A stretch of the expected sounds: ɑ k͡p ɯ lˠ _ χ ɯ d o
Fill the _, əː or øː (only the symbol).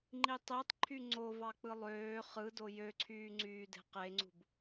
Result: øː